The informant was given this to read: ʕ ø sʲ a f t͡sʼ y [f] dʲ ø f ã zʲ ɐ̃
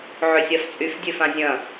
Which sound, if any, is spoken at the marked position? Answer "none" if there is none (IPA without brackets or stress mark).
f